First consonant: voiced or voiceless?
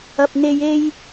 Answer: voiceless